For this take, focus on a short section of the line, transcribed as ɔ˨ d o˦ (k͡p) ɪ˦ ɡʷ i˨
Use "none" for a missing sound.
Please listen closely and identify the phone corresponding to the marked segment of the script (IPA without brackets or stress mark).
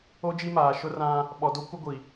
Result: kʷ